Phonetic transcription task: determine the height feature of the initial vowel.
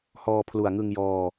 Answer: mid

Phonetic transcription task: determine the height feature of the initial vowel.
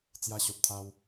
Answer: low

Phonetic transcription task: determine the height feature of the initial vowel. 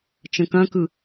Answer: mid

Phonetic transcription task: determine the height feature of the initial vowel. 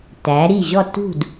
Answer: low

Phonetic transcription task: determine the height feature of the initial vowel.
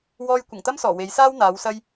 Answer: mid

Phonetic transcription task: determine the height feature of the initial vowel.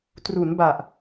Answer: high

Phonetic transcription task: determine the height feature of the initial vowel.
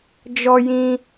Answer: mid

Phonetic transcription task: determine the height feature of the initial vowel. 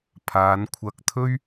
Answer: low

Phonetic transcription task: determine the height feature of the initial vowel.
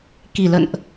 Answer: high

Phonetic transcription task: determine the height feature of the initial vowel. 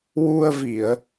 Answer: high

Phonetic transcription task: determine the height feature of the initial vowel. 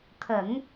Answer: mid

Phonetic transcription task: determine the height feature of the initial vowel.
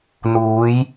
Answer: high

